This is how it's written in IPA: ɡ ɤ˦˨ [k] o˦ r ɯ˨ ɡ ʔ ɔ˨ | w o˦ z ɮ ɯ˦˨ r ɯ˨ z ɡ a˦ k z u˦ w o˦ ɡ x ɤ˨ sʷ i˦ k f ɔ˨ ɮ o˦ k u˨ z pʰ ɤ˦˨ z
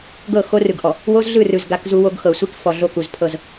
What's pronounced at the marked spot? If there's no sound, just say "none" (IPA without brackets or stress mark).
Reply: x